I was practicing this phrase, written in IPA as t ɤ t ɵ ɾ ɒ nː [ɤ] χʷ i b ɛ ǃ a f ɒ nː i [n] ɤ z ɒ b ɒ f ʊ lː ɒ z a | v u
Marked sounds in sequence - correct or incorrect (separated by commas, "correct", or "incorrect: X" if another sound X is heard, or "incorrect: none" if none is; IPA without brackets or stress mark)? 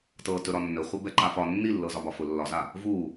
incorrect: ɵ, incorrect: lː